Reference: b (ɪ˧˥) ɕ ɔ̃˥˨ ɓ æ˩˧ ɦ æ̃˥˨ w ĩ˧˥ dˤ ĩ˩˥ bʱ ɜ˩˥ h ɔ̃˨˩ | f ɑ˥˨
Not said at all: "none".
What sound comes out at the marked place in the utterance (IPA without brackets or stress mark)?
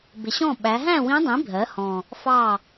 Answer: ɪ˩˧